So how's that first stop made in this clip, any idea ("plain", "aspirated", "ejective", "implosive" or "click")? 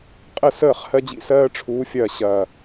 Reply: ejective